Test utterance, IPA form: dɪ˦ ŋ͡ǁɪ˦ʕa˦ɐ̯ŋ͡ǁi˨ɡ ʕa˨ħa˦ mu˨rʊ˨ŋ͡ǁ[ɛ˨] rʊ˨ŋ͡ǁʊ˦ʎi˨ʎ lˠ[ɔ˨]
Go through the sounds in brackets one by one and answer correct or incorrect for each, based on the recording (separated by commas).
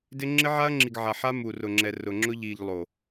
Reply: correct, incorrect